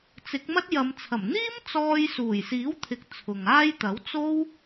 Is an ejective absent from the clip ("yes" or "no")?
yes